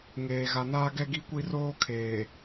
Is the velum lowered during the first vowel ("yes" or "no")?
no